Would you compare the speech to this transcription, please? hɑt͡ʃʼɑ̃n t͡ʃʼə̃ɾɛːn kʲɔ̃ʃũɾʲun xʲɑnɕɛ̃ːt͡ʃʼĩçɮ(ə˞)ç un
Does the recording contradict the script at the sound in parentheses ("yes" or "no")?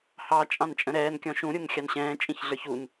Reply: no